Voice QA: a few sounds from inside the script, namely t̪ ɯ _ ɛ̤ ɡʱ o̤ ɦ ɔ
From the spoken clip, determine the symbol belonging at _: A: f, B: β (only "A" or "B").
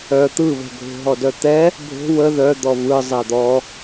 B